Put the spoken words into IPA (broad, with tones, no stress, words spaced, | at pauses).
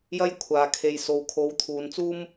jɐ˥jkʷʰaː˨ kʰe˨jso˨w kʰo˨˧wt̪ʰuː˨nt͡suː˥m